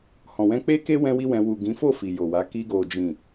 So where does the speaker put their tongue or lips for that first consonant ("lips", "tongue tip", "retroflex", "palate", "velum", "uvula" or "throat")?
throat